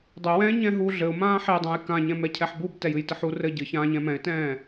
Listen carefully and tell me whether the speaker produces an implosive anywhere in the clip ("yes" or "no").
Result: no